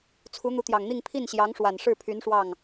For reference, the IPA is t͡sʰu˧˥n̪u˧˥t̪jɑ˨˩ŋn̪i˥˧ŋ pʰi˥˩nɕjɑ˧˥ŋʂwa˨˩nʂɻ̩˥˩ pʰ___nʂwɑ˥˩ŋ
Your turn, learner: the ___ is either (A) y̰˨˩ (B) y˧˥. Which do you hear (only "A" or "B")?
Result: B